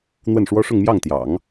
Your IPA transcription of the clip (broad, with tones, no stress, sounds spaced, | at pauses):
n̪ w ə˥˩ n ʂ w ɔ˥ ʂ ʊ˥˧ ŋ m j ɑ˥˩ ŋ t̪ j ɑ̰˨˩˦ ŋ